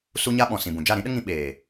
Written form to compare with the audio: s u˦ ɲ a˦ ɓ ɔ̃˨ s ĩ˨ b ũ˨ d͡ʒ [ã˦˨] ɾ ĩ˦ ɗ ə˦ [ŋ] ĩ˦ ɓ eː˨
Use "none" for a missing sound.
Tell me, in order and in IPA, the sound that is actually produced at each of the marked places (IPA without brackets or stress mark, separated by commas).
a˦˨, ŋ